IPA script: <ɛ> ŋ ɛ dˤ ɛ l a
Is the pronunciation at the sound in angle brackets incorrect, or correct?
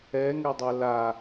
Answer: correct